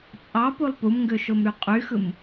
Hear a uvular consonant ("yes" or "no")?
yes